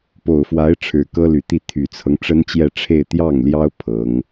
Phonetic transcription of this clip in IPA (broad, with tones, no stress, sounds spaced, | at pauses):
p o˨˩ ʊ̯ f w a˧˥ ɪ̯ ʈ͡ʂʰ ɻ̩˨˩ k ɤ˥ l y˨˩ t̪ i˥˩ t̪ʰ y˨˩ t͡sʰ ɤ˦ ŋ ʈ͡ʂ ə˥ n t͡ɕ j ɛ˥˧ ʈ͡ʂʰ e˥˧ ɪ̯ t̪ j ɑ˥˩ ŋ l j ɑ˥ ʊ̯ pʰ ɤ˧˥ ŋ